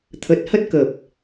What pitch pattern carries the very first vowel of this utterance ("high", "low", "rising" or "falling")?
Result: low